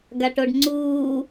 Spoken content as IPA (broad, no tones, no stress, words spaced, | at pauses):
ɡaʈoɖŋ͡ǀuː